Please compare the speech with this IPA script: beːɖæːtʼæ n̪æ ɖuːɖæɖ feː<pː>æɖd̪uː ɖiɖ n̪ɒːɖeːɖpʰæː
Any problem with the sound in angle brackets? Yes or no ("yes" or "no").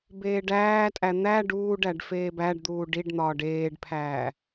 yes